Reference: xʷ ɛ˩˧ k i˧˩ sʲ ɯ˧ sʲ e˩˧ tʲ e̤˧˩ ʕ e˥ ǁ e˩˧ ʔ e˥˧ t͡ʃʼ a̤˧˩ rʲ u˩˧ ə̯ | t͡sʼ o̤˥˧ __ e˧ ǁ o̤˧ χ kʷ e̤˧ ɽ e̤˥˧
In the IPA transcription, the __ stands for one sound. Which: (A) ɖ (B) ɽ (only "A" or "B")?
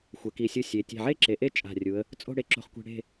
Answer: B